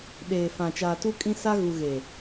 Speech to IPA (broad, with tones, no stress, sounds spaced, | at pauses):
ɗ eː˨ f ã˨ t͡ʃ aː˨ t u˦ kʼ ĩ˦ s a˦ ɣ u˨ ɣ e˨